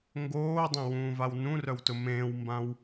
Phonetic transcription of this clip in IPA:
ŋ ɡ oː dˤ ẽ w ũː v a w n ũ r œ w t ʊ m ẽː w m b ã w

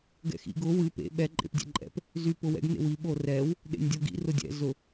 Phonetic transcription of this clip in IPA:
ɡ ɛ̰ x ḭ ɡ ʊ w ɨ p ḛ ɓ ɛ ǃʼ ḛ p dʲ ɛ̰ ǃʼ ɛ̰ p | z y p ʊ w ɛ̰ ɡ n ḛ w i ɓ o r ɛ w | ɗ ḛ nʲ dʲ o ɡ ḭ r ʊ dʲ ɛ̰ z ʊ

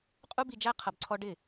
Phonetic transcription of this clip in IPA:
qʼ u˦ b i˧ d͡ʒ æ˦ qʰ ʌ˧ b ǀʰ ɔ˦ ɖ ɪ˦˨

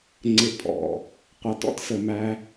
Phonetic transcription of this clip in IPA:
ŋ͡ǀ ɪ˦ pʼ ɔ̰˨ | qʷ ɑ˦ t ɔ̰˦ t s ə˧ m æ˦

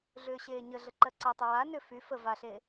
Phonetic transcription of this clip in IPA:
ɮ ʏː ɕ eː ɲ ə ɮ ə ǃ ɜ ǀ a tˤ ə w a n ʏ f y f ə v a ɬ e

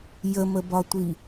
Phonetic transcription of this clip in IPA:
j ə m ə b ɒ tʷ i

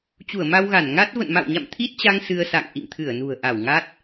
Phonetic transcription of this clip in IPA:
t͡ɕ u˧˩ ə̯ m a˧ w ɣ a˧˩ n ŋ a˦˥ t̚ v ə̰˧˨ n m a̰˧˨ w ɲ a̰˧˨ m t̪ʰ i˦˥ t̚ t͡ɕ a˧ ŋ s ɨ˧ ə̯ s a̰˧˨ ŋ ʔ ḭ˧˨ ŋ t̪ʰ ɨ˧˩ ə̯ n ṳ˨˩ ə̯ ʔ a˧˩ w ŋ a˦˥ t̚

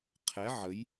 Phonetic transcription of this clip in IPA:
qʰ ɛ ʕ ə j

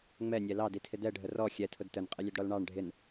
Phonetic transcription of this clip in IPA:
ŋ͡m ɛ nʲ ɛ l ɑ d i tʰ ɪ d ɛ ɖʱ ə r ɔ xʲ ɛ tʰ ʊ d t ə n qʼ ɪ lʲ ʊ d ɽ ɔ l ɳ ɑ ɳ ɖʱ ɪ n

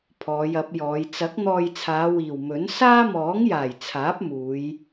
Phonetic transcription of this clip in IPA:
pʰ ɔː˨˧ j ɐ˨˥ p̚ j ɔː˨˧ j t͡s ɐ˨˥ k̚ n̪ ɔː˧ j t͡sʰ aː˨˧ w iː˨˩ w m ɵ˨˥ n s aː˥ m ɔː˨˥ ŋ j aː˨˩ j t͡sʰ aː˨˥ p̚ m uː˨˧ j

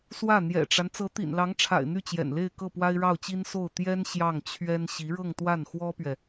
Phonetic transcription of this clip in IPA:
s w ä˥˩ n̪ j ɛ̰˨˩ ʈ͡ʂ a˦ n t͡s ɤ˧˥ t̪ ḭ˨˩ n l ɑ˧˥ ŋ ʈ͡ʂʰ a̰˨˩ ɪ̯ n̪ y˥˩ t͡ɕ j ɛ̰˨˩ n l e˥˧ ɪ̯ k ɤ˥˩ p w a˥ ɪ̯ ɻ ɑ˥˩ ʊ̯ t͡ɕ i˥ n s o˥˩ ʊ̯ t̪ j ɛ˥ n ɕ j ɑ˥˩ ŋ t͡ɕʰ ɥ ɛ˥ n ɕ i˧˥ ɻ ɤ˥˧ ŋ t̪ w a˥˩ n x w ɔ˥ p ɥ ɛ˨

